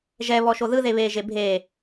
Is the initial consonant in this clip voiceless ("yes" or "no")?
no